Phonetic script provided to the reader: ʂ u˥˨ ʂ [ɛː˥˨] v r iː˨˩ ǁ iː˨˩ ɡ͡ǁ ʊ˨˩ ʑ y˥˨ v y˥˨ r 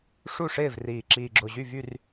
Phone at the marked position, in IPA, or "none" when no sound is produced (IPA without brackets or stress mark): ɪː˥˨